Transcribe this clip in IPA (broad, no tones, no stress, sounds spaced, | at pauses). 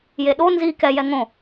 j e ɗ o n z i k ɛ j ɛ ŋ õ